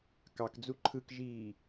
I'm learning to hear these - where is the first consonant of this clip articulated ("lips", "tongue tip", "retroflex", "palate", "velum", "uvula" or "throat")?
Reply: velum